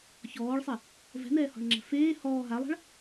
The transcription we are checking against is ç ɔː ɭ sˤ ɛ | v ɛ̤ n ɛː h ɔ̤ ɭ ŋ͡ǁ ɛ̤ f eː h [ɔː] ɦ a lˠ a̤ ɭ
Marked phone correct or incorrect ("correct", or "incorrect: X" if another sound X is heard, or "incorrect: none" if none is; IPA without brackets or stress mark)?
correct